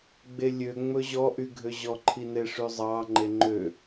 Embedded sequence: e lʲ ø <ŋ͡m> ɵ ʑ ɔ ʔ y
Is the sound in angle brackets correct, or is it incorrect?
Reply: correct